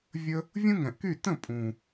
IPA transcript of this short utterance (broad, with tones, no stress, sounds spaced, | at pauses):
vʲ ə˧ | vʲ ũ˦ ŋ ɛ̃˨ ʔ k y˦˨ t ə̃˦˨ pʼ ũ˨